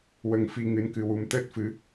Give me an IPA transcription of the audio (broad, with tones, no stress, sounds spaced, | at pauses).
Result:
w ə˧ ŋ f i˧ ŋ ɨ˧˥ n k ɨ˧ w u˧ m t̪ əː˦˥ t̚ f ɨ˧˥